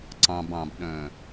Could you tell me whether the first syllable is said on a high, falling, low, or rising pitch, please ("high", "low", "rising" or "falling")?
low